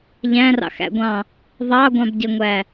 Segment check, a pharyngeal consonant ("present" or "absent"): absent